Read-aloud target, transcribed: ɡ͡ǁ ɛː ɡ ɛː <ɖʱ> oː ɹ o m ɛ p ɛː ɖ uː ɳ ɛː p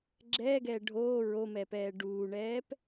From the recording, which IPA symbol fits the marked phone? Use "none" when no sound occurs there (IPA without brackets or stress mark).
ɖʱ